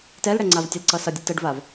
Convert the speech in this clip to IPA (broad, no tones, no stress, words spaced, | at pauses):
tɛlɽɛ ŋ͡ǀavtʲəlǀʌsʌ dʲətəɖvav